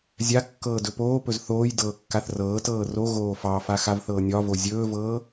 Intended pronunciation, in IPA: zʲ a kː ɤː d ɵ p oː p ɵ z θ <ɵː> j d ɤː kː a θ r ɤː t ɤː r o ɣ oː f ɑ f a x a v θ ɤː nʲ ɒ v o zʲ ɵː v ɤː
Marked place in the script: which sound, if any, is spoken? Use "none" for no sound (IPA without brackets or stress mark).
oː